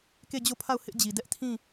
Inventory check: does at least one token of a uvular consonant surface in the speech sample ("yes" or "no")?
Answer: no